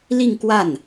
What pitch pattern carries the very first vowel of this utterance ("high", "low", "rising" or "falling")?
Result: falling